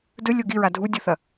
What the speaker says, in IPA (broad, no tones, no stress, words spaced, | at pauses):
dɵlʲo ɡiɹa dʱudʲoθɐ